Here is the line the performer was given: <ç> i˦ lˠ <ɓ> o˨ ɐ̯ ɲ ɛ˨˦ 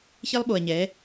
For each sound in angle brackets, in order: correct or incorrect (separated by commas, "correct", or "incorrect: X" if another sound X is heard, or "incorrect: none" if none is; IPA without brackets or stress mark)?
correct, correct